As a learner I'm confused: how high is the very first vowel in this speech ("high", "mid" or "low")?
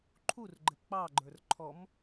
high